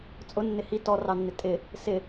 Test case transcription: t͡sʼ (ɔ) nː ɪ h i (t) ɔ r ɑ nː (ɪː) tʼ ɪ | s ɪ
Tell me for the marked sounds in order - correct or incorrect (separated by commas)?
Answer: incorrect, correct, incorrect